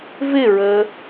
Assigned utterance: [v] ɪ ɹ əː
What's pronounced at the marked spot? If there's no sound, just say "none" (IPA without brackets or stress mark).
v